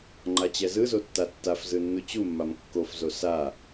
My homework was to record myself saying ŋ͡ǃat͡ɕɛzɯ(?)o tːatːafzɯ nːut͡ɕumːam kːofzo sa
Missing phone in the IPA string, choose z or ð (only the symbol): z